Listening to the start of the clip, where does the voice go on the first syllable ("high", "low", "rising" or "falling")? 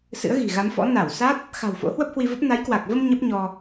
rising